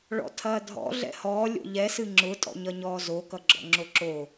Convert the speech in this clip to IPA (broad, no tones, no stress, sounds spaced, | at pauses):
ɭ ɔ̰ tʰ ɐː dʱ ɔ̰ ɮ ɛ̰ h ɔː lʲ o̰ ʎ ɛ s ɨ ŋ͡ǁ ʊ tʼ ɔ̰ ɲ ʌ ɲ ɔː z o k ʌ ɡ͡ǁ ɔ̰ ŋ͡ǁ o ǁ o